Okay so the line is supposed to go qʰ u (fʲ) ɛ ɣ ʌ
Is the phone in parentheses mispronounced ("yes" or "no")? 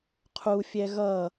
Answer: no